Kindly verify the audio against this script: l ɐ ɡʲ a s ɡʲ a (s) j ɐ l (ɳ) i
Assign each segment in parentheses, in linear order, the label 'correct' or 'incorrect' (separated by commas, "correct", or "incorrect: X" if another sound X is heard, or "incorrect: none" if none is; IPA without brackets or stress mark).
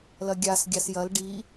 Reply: correct, incorrect: ɖ